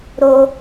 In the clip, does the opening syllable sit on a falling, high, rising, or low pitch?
high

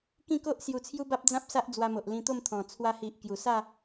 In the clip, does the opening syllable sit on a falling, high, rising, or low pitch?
falling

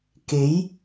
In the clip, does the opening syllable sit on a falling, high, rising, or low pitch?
rising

